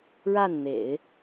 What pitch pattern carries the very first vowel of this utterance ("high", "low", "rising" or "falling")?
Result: falling